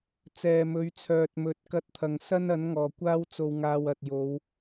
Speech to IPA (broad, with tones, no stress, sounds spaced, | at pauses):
t͡s ɛː˨ m ɵ˨˧ ɥ t͡sʰ œː˨ t̚ m ɵ˨˥ t̚ k ɐ˧ t̚ t̪ʰ ɐ˨ ŋ s ɐ˥ n ɐ˨˥ n ŋ ɔː˨˩ kʷ aː˥ w t͡s o˧ w ŋ aː˧ w ɐ˨ t̚ j o˨˧ w